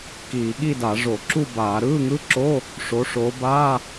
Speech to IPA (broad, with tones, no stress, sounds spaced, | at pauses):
k iː˧˩˧ ɠ i˥˨ d a˧˩˧ ʐ o˧˩˧ ǁ u˥˨ b aː˧˩˧ ɾ ɯː˧˥˧ ŋ ɯ˧˥˧ ǁ o˧˥˧ | ʂ o˨˦ ʂ o˨˦ b aː˧˥˧